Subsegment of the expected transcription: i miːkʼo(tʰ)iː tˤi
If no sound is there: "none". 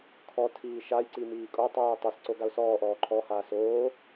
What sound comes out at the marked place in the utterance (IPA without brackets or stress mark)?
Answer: tˤ